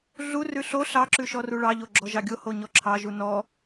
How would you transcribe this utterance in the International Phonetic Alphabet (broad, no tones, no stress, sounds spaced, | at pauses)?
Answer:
ɮ u r ʉ ɬ o ɬ ɑ ǁ ʉ ʃ ɔ r u ɭ ɑ ʎ o ɡ͡ǁ ɔ ʒ ɑ ɡʲ o h o ɲ ɔ ǁʰ ɑ ʒ u n ɔ